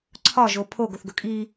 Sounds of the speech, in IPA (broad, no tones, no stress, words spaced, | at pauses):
ǀʰɒʒo pʰoɡoθɡɵ kʼi